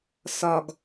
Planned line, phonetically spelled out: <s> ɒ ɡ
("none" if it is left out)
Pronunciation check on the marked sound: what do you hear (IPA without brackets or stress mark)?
s